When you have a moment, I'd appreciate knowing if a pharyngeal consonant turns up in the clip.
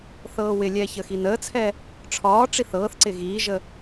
no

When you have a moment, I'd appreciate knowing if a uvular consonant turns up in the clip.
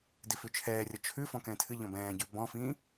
no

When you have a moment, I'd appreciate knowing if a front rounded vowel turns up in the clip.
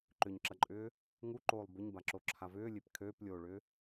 yes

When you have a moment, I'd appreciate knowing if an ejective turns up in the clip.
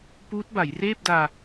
no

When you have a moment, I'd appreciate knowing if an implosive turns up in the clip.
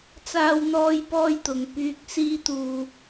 no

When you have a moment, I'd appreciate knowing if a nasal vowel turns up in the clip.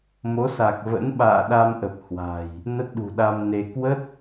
no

